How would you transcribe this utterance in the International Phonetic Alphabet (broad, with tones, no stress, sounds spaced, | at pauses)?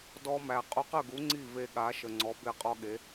d ɔ˧ m æ˩ qʼ u˧ q ə˥˩ ɡ u˩˥ ŋ͡ǀ i˥˩ v e˧ ɠ a˩˥ ʃ ə˩ ŋ͡ǀ ɔ˩˥ b e˥˩ qʼ ɔ˥ ɠ e˩˥